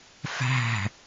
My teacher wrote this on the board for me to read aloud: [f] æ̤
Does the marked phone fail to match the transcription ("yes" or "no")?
no